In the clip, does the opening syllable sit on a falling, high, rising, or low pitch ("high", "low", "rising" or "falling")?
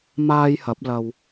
high